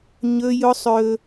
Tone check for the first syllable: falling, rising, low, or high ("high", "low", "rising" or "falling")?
high